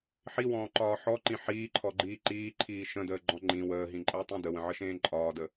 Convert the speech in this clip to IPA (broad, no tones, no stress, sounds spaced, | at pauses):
ħ i w ɔ̃ː ǃ ɒː ħ ɔ ǃ ĩ ħ iː ǃʰ ɔ ɡ͡ǃ iː ǃ iː ǃʰ iː ʃ ə̃ d əː ɡ͡ǃ ɔ̃ ŋ͡ǃ ĩ w əː ɦ ĩ ǃʼ əː tˤ ĩ d ə w ə̃ ʕ ə ʃ ẽː ǃʼ ɒː d ə